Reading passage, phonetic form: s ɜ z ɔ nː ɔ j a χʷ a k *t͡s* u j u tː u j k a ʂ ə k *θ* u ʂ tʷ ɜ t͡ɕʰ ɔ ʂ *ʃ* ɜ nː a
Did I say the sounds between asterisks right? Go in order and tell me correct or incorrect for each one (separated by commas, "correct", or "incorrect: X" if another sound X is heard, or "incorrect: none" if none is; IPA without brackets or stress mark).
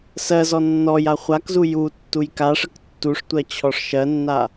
incorrect: z, incorrect: tː, correct